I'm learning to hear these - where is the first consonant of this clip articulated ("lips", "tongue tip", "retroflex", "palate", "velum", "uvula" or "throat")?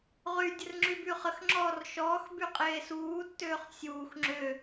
uvula